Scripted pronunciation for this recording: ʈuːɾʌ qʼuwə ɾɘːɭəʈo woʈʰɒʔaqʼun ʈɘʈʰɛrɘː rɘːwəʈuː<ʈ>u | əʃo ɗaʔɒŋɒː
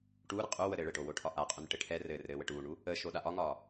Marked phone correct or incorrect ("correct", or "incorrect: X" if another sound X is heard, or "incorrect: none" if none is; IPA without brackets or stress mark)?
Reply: incorrect: ɳ